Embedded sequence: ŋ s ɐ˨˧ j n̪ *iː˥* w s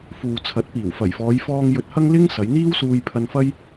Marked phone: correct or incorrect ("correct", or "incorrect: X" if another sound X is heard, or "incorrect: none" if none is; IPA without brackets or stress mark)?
correct